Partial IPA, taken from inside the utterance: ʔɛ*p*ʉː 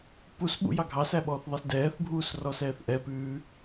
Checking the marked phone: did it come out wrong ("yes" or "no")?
no